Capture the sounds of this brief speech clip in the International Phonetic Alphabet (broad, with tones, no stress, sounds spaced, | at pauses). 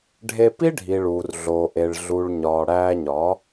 ɖʱ e˧ p i˦ ɖʱ i˨ ɭ uː˨ r ɮ oː˨ ʔ e˨ ɭ ɮ u˨ ɭ ɲ ɒː˨ ɽ æː˧ ɲ ɒ˨˦